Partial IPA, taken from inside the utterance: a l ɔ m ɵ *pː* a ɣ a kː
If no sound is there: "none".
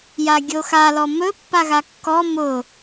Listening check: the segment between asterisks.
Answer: pː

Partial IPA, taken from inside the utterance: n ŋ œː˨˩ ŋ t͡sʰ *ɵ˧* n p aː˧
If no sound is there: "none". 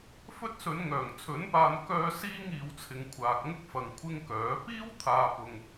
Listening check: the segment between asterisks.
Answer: ɵ˨˥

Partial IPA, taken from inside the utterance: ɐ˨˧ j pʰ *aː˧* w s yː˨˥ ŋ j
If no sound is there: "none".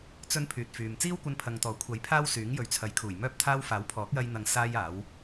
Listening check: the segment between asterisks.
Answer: aː˥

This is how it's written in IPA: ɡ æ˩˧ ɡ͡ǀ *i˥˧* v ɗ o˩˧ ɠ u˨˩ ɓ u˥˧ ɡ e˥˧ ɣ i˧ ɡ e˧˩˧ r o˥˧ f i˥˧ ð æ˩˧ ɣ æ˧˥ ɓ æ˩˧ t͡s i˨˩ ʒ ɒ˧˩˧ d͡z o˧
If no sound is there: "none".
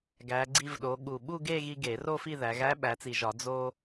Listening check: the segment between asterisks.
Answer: i˧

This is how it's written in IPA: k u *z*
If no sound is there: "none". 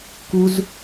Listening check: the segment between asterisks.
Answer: z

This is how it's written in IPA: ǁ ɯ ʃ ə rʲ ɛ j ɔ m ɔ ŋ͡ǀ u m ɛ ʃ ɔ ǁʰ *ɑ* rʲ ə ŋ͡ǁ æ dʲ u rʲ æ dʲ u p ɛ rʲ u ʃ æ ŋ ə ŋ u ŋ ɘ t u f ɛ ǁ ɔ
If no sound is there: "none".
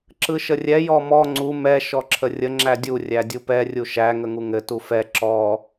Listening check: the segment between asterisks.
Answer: ə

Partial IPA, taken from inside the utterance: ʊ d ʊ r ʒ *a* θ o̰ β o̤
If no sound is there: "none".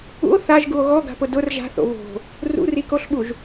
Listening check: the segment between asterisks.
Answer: a̤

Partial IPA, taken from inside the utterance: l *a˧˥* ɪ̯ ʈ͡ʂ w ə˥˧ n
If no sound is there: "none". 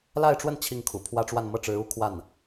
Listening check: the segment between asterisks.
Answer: a˥˧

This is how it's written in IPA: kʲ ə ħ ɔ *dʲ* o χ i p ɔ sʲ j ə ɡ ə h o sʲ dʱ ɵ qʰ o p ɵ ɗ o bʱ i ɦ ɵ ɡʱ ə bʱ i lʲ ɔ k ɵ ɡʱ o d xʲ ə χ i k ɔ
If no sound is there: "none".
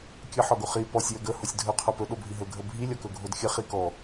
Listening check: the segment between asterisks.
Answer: ɡ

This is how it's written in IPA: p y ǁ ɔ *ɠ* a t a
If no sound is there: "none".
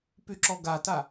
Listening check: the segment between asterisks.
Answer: ɡ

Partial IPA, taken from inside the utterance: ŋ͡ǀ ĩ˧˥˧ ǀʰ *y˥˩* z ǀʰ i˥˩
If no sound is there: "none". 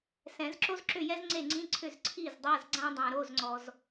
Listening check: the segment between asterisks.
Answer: ʏ˥˩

